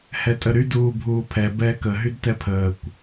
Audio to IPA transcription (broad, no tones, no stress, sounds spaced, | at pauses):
h ɛ tʼ ə ɾ y d uː bʱ uː pʰ ɛ b ɛː k ə ɦ y d t ɛ pʰ əː kʷ